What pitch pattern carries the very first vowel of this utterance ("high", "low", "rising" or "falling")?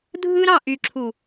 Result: high